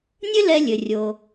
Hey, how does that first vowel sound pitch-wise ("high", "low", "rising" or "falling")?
high